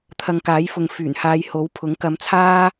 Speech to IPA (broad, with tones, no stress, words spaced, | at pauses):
t̪ʰɐ˨ŋ kaː˨˥jfʊ˨ŋ fyː˨˩nhaː˧jho˨˥wpʰʊ˨˥ŋ kɐ˨˧mt͡sʰaː˥